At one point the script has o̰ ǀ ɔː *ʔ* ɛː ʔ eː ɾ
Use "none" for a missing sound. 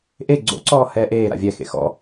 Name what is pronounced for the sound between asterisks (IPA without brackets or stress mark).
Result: h